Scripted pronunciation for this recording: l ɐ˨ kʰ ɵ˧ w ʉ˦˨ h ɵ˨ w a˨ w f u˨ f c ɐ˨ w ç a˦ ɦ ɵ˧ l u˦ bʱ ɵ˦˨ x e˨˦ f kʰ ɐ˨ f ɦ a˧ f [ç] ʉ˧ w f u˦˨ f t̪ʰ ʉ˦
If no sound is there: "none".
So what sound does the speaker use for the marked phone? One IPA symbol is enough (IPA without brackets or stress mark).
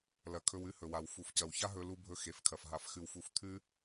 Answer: x